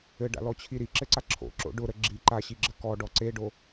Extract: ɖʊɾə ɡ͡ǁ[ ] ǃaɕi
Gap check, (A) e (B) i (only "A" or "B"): B